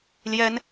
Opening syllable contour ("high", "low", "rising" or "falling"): high